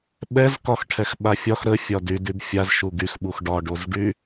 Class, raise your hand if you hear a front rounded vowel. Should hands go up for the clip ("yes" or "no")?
yes